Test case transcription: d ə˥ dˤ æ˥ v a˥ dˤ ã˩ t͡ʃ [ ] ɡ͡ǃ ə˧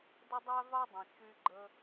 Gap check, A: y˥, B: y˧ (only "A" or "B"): B